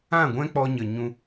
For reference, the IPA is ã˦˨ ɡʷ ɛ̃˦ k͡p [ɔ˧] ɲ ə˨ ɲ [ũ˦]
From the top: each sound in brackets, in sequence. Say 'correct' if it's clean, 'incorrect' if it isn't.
correct, incorrect

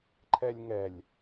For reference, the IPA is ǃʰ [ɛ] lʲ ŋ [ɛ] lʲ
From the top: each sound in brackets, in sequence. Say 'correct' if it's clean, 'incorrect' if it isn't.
correct, correct

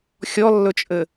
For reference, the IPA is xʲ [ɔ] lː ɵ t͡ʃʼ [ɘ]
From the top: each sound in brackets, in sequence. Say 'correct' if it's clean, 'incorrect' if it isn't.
correct, correct

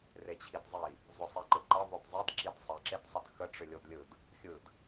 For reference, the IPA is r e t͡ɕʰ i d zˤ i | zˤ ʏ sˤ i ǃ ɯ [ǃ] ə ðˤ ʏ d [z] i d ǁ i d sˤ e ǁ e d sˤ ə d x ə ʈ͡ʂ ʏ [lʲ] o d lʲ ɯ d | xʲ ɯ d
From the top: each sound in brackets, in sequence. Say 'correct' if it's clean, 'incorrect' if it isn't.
correct, incorrect, correct

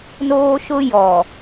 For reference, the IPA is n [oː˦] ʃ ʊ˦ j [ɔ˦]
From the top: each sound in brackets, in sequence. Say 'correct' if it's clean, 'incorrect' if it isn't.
correct, incorrect

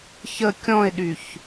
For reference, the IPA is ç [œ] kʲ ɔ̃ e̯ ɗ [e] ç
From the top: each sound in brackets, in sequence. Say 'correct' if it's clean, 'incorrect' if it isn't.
incorrect, incorrect

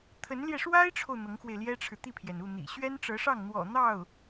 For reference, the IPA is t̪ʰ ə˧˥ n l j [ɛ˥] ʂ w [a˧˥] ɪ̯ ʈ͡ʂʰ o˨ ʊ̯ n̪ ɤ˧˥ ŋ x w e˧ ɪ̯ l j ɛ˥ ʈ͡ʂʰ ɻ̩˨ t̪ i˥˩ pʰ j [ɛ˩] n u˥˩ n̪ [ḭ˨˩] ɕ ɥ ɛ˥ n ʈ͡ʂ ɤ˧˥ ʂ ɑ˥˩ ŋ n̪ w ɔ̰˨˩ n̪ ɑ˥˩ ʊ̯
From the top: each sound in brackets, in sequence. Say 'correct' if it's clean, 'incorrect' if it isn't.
incorrect, incorrect, correct, correct

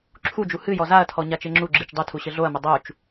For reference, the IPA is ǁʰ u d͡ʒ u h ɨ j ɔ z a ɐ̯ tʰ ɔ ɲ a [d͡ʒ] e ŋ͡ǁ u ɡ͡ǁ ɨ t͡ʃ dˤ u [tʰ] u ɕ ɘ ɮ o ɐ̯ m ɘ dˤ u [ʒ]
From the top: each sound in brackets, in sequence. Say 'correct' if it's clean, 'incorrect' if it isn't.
incorrect, correct, incorrect

